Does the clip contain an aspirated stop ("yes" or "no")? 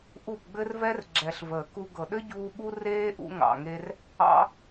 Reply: no